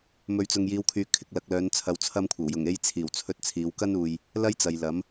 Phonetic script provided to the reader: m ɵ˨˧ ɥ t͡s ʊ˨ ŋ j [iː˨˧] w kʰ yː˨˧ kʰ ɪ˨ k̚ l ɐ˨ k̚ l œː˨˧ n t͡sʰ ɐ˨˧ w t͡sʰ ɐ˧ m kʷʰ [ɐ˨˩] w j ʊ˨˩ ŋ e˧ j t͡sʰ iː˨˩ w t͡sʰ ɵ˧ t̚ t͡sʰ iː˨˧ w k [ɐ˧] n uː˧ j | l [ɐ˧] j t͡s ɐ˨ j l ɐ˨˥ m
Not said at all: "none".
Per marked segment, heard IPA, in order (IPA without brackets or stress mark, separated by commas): iː˨˧, ɐ˨˩, ɐ˥, ɐ˥